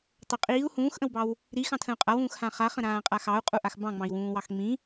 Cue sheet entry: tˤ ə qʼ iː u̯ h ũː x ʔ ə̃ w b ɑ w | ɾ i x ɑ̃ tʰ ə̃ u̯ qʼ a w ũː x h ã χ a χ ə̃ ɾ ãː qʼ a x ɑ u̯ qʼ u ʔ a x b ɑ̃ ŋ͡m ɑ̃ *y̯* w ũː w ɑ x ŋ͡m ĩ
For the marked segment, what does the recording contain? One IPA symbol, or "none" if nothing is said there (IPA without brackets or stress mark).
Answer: i̯